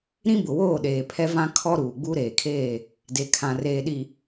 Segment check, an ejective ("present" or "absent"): absent